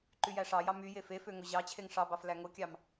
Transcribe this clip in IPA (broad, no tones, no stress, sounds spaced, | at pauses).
ǃ y j æ ʂ ɑ j ɑ m y j e f e f ø ŋ o ʑ ɑ t͡ɕʰ e ŋ ʂ ɑ b ɑ f l æ ŋ o kʲ ɑ m